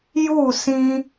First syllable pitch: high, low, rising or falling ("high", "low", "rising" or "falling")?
falling